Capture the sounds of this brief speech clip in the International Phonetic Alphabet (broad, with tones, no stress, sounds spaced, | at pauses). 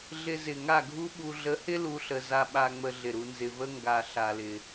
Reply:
ɮ ɪ˧ z ɪ˨ ŋ a˦˨ ɡʱ u˦ ɓ u˨ ɮ ə˨˦ h ɪ˦ l u˦ ɬ ə˧ z a˧ ɓ a˧ ŋ͡m ə˧ ɮ ɪ˨ ɾ u˧ n z ɪ˨ v ə˦ ŋ ɡ a˨ ɬ a˨ l ɪ˨